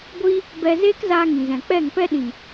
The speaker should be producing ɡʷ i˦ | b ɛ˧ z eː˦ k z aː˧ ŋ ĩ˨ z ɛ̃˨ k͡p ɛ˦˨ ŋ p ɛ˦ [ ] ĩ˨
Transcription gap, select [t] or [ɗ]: ɗ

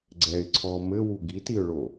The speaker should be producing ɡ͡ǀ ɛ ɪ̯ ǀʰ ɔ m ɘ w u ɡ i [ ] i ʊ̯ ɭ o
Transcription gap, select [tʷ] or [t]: t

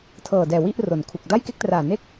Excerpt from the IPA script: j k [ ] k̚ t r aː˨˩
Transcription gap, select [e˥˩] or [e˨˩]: e˥˩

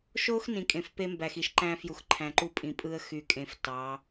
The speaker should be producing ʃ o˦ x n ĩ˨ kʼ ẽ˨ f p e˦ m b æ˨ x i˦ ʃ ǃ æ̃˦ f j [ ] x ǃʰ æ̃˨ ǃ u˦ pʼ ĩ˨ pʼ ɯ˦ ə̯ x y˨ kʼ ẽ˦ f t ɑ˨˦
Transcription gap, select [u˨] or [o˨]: u˨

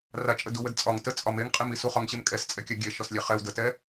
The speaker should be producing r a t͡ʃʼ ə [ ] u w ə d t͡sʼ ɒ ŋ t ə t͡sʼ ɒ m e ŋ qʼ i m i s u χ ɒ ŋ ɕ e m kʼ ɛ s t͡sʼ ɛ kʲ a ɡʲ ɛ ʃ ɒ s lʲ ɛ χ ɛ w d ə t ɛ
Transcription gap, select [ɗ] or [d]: d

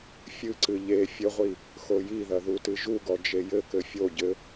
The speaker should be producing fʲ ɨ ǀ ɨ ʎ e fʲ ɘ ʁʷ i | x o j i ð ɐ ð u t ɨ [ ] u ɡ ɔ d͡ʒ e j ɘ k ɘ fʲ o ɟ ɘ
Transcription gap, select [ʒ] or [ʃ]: ʒ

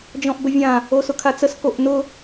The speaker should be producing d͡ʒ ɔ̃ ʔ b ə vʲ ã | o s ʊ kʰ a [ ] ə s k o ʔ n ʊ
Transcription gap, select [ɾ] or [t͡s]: t͡s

